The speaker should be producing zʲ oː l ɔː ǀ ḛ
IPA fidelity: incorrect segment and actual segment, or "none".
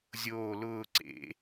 ɔː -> ʊː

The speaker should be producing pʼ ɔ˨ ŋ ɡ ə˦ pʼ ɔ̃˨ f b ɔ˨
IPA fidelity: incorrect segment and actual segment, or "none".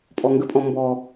f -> m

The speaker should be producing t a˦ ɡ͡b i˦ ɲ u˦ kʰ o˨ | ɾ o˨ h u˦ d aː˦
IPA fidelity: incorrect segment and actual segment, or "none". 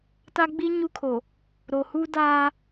none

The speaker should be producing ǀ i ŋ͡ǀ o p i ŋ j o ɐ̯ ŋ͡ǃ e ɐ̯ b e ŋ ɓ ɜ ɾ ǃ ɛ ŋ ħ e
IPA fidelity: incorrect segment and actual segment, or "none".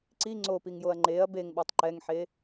ɾ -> tˤ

